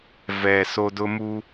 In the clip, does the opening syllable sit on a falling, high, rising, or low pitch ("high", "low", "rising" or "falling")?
low